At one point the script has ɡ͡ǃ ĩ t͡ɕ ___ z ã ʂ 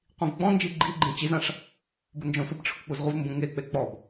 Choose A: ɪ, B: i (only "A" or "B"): B